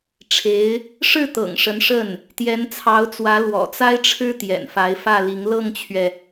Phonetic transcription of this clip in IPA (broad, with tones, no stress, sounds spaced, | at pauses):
ʈ͡ʂʰ e˧˥ ɪ̯ | ʂ ɻ̩˥˩ t̪ ɤ̰˨˩ ŋ ʂ ə˧˥ n ʂ ə˥˩ n | t̪ j ɛ˧˥ n t͡sʰ ɑ˧˥ ʊ̯ t͡s w ä˧˥ l w ɔ̰˨˩ t͡s a˥ ɪ̯ ʈ͡ʂʰ ɻ̩˥ t̪ j ɛ̰˨˩ n f a˧˥ ɪ̯ f ä˥˩ l i˧˥ ŋ l ɤ˥˩ ŋ t͡ɕʰ ɥ ɛ˩